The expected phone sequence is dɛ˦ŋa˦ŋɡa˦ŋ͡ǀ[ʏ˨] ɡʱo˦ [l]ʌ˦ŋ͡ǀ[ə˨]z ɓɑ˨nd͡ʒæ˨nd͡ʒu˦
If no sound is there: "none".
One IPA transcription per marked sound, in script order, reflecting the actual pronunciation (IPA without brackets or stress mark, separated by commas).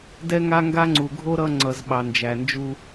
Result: u˨, ɾ, ʌ˨